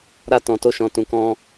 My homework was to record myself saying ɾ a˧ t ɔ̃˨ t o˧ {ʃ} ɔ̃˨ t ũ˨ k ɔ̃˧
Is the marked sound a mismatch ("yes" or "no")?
no